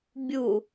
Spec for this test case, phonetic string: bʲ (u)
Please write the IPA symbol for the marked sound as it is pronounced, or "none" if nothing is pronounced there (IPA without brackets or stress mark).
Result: u